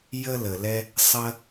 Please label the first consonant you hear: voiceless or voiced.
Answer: voiced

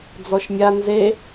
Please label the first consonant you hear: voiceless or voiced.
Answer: voiced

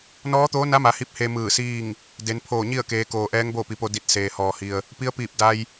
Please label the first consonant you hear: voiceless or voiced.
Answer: voiced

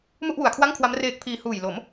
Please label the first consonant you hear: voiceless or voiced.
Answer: voiced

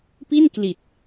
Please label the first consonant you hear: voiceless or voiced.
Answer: voiceless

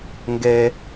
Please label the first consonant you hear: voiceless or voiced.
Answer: voiced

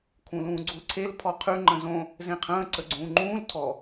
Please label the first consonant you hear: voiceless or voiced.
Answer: voiceless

